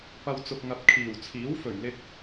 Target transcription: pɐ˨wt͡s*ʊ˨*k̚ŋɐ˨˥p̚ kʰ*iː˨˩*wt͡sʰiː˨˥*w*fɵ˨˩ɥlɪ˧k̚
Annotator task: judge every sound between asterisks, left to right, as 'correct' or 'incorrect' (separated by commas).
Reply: correct, correct, correct